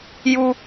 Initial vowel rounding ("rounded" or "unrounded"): rounded